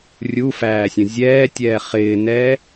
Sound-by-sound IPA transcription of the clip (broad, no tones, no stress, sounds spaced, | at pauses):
rʲ u f æː sʲ ə̃ zʲ ɛː tʲ ɛː χ ɪː n ɛː